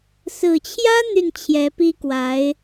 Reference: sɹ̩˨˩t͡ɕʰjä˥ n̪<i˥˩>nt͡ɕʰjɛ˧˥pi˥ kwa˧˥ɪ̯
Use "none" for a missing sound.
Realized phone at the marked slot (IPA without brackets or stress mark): y˥˩